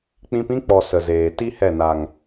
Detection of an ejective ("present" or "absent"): absent